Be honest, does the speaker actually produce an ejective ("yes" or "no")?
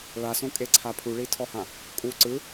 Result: yes